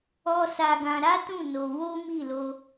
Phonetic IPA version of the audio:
ɔ˧ s a˧ ɡ ã˧ ɾ a˦ t ũ˦˨ n o˧ w o˦ m i˦˨ l o˧

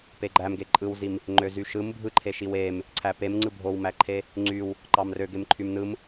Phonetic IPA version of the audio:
p e ɡ͡ǃ æ m ɡ e ǃʼ ɯ w z i m | ŋ͡ǃ ø z y ʃ ɯ m bʱ ɯ ǃʰ e ʃ i w e m | ǀʰ æ p e m ŋ͡ǀ ɯ bʱ o w m æ ǃʰ e | ŋ͡ǀ y w | ǃ ɑ m r ø ɡ e m ǃʰ y m n ɯ m

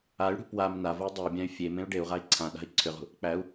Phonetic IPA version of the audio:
a y̯ ɽ ṳ p w a m n a v ə u̯ dˤ ə u̯ bʲ ã y̯ fʲ e m ẽ u̯ ɖ e u̯ ʁ a i̯ ǀʰ ã ɗ a̤ i̯ ǀʰ ʏ ʁ ṳ | k͡p æ u̯

